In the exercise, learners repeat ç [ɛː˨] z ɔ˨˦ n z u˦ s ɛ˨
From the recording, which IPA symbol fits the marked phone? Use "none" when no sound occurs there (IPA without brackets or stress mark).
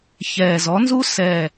ɛː˨